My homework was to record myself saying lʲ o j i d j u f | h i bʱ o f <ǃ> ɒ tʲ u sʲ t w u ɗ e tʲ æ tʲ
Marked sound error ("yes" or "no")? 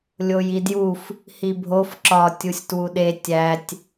yes